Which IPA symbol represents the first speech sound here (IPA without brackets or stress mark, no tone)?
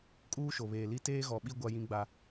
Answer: kʼ